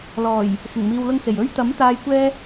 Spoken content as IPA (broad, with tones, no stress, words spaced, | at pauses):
lɔː˨˩j | sɪ˨˩ŋmiː˨wlʊ˧ŋse˨˩j ɵ˧ɥt̪ɐ˨˥m t̪aː˧jkʷɛː˥